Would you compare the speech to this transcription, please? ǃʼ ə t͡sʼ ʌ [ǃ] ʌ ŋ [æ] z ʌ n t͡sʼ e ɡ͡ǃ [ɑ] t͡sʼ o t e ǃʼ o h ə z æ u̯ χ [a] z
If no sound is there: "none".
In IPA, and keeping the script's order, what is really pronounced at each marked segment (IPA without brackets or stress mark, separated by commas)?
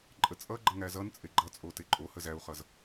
ɡ͡ǃ, æ, ʌ, ʌ